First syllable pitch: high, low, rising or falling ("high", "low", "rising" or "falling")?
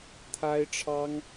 high